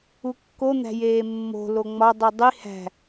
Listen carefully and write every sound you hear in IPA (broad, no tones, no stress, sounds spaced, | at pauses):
u kː o n̪ æ̤ j eː mː o̤ l o ŋ͡m ɒ dˤ u dˤ i h æ̤